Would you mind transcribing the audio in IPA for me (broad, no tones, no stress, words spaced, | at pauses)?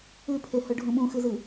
ʉpʰehɵ ɖʱũɓũxɨzɨ